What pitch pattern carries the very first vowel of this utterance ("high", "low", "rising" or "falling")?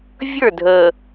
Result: falling